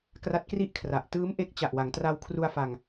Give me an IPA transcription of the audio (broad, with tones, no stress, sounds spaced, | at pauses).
k r a˦˥ t̚ k r i˥˩ ʔ kʰ r a˨˩ ʔ t ɯː˦˥ m ʔ e˦˥ k̚ t͡ɕ a˨˩ ʔ w a˩˦ ŋ t r a˧ w kʰ r u˧ a̯ f a˧ ŋ